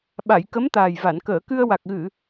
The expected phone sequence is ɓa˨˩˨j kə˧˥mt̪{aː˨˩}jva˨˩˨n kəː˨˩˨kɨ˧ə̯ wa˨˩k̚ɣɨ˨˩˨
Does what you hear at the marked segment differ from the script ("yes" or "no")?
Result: no